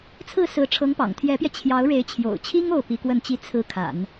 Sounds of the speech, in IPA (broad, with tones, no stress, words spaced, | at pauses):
t͡sʰɹ̩˥˩sɹ̩˧˥ ʈ͡ʂʰɤ˧˥ŋpɑ̰˨˩ŋt̪ʰjɛ˧˥pjɛ˧ t͡ɕʰjɑ˧˥ʊ̯ɻe˧˥ɪ̯ t͡ɕʰjo̰˨˩ʊ̯t͡ɕʰi˥ŋ o˥˩ʊ̯pi˧˥kwə˥˩nt͡ɕi˥ t͡sʰɹ̩˥˩kʰa̰˨˩˦n